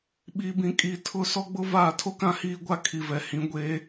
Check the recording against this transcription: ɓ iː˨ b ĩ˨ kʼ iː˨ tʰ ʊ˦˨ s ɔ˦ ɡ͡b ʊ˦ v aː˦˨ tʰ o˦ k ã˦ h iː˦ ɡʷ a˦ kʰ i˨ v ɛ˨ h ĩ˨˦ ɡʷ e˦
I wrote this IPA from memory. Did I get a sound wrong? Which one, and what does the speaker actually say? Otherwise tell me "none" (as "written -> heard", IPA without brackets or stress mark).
none